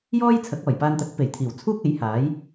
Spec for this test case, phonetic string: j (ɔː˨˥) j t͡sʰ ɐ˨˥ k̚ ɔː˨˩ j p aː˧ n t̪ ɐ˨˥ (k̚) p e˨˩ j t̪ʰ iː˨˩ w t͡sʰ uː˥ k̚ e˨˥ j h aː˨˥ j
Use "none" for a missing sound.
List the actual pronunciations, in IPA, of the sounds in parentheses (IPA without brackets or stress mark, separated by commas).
ɔː˥, k̚